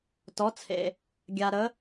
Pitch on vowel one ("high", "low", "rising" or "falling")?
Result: rising